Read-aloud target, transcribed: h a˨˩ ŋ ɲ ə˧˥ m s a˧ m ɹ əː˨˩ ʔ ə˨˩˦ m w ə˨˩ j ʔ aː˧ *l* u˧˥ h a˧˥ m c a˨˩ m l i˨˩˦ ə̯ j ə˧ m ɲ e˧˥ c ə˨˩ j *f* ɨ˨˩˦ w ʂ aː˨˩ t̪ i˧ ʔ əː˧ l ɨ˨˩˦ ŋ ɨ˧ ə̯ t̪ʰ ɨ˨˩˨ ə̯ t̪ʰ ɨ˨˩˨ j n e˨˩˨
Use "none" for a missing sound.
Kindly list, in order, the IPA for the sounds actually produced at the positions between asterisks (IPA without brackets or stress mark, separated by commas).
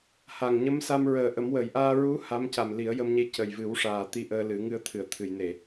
ɹ, v